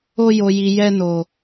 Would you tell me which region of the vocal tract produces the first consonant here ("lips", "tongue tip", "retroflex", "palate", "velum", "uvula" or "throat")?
palate